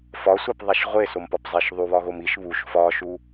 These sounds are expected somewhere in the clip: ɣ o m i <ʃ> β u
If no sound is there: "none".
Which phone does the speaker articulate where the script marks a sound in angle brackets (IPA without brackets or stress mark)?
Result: ʃ